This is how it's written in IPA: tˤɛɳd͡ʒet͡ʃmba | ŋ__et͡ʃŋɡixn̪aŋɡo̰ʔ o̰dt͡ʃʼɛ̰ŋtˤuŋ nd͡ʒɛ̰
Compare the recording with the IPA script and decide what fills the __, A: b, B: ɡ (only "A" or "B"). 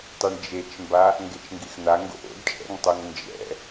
B